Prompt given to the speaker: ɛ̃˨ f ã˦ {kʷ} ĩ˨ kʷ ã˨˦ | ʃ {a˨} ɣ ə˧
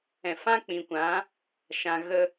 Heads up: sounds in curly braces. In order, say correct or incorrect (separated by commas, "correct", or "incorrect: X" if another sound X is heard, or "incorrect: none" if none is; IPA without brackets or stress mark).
incorrect: k͡p, incorrect: ã˨